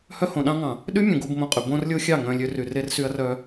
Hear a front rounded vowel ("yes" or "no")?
yes